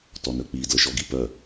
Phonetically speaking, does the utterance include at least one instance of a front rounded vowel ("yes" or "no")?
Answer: yes